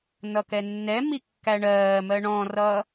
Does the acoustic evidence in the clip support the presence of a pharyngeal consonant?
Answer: no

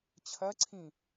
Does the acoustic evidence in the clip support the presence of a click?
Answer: yes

